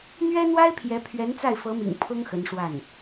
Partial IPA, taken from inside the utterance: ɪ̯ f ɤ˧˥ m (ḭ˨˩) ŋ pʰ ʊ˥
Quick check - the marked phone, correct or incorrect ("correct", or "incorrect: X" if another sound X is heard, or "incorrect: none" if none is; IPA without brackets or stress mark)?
correct